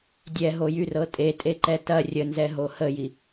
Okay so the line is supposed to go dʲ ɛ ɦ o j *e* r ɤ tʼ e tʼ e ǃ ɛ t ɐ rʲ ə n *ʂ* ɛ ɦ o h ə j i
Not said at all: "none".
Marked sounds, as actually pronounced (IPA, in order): y, z

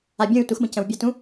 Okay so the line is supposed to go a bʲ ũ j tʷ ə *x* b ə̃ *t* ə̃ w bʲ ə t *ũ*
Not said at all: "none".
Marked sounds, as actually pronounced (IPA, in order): x, c, ũ

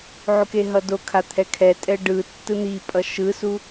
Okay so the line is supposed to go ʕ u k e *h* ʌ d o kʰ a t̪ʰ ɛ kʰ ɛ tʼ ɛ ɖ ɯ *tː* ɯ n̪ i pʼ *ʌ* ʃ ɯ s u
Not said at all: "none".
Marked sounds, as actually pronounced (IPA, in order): ɦ, tː, ʌ

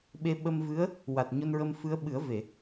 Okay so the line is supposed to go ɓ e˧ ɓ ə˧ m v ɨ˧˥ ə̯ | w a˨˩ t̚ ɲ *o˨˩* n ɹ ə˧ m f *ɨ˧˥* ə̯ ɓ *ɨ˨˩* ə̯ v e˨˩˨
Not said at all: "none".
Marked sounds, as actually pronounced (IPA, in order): o˧, ɨ˧˥, ɨ˨˩˦

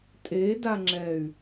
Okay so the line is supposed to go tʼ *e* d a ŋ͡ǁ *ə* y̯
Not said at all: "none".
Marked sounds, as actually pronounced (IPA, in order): e, ɛ

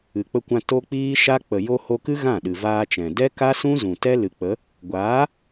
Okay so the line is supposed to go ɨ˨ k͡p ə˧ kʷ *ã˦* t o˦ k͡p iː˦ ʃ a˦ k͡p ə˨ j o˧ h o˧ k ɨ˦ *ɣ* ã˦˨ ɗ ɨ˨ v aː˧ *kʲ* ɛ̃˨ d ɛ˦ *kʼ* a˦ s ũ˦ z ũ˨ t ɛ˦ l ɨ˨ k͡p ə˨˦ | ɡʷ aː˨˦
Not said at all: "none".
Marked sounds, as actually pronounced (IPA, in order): ã˧, ɣ, t͡ʃ, k

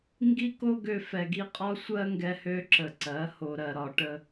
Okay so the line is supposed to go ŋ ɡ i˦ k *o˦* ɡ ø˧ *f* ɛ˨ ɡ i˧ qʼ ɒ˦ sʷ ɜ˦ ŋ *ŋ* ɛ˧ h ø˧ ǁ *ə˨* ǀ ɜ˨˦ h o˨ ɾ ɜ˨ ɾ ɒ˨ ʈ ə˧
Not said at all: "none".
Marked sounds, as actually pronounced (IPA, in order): o˦, f, ɡ, ə˨

